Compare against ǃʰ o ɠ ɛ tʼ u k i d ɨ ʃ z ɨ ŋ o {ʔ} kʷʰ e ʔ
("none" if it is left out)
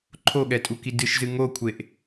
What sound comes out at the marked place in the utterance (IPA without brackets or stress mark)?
none